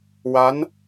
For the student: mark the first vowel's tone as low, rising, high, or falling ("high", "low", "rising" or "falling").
rising